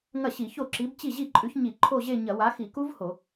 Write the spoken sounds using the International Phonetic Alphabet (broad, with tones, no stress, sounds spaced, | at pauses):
ŋ ɐ˥˩ ɕ i˧˩˧ ç o˥˩ ǁ i˨˥ b t͡ɕ i˥˩ ʑ i˥˩ ǃʼ ʉ˨˥ ç ɲ i˧˩˧ ǃʰ o˥˧ ʑ e˥˧ ɲ ɐ˧˩˧ w a˨˥ x i˧˩˧ k u˦˥ v h o˧˩˧